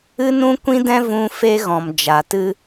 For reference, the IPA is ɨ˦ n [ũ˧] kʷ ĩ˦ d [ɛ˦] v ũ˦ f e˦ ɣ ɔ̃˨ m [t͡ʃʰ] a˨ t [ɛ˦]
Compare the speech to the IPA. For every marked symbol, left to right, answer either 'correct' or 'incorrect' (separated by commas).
incorrect, incorrect, incorrect, incorrect